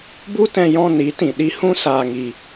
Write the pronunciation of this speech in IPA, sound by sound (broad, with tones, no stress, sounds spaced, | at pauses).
b u˦ t ɛ̃˧ j ɔ̃˧ n i˨˦ t ĩ˨ ɗ i˧ h ũ˦ s aː˧ ŋ i˧